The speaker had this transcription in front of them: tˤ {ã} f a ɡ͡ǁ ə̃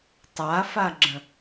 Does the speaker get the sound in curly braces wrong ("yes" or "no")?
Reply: yes